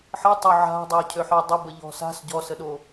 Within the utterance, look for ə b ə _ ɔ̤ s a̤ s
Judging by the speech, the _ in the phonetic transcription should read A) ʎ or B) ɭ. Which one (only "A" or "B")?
A